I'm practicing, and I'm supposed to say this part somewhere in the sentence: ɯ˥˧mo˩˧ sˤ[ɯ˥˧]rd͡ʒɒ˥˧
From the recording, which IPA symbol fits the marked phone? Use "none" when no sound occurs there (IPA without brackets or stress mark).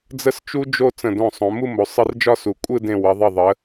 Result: ɯ˧